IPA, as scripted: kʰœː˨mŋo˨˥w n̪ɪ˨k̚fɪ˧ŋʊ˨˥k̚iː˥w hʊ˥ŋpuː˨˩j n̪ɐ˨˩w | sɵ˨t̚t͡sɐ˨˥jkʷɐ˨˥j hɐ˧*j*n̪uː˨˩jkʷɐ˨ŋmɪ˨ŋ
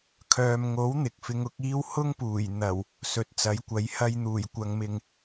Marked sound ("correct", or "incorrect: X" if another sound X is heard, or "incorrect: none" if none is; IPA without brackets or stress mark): correct